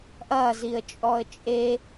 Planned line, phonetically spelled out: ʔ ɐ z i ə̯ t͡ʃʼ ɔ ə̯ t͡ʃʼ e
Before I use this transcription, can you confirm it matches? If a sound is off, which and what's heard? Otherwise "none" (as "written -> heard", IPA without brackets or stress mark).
none